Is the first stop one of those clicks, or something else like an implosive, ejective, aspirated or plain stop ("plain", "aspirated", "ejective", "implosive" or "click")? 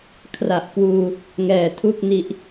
aspirated